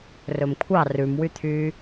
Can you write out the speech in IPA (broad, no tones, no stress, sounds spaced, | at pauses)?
r ɵ m kʷʰ ɑ r ʉ m w y t̪ʰ yː